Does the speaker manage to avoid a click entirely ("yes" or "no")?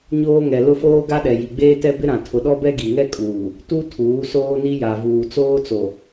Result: yes